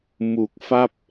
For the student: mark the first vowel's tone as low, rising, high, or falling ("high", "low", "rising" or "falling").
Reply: low